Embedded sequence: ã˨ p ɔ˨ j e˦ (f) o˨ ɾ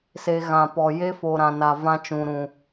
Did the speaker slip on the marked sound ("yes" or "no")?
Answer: no